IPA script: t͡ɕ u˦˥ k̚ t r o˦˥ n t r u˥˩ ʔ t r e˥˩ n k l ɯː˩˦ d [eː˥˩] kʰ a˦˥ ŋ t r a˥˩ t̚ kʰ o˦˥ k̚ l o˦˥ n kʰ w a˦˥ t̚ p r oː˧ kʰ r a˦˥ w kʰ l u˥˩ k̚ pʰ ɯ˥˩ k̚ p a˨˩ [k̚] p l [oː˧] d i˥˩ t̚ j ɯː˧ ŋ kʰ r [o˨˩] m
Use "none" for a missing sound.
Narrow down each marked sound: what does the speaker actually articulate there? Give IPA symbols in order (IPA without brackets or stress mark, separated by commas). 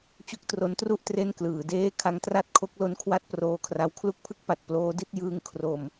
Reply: eː˥˩, t̚, oː˦˥, o˧